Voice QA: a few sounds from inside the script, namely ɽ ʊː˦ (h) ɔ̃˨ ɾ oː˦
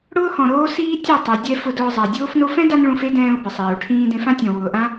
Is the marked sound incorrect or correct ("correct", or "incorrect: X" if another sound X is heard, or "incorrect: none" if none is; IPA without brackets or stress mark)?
correct